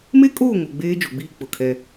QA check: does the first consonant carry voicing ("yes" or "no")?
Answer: yes